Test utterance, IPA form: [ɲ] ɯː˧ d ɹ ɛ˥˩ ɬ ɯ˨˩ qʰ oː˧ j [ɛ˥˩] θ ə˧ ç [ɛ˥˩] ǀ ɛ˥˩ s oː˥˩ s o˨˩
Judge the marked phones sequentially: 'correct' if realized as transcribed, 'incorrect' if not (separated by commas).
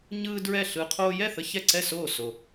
correct, correct, correct